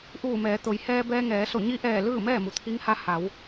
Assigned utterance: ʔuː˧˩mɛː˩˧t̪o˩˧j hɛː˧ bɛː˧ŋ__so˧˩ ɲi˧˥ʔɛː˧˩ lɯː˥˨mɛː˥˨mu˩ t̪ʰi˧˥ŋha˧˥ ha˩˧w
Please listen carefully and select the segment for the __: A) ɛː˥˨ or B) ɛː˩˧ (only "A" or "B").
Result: B